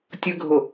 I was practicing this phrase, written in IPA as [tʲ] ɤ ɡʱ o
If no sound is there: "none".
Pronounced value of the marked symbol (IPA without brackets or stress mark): tʲ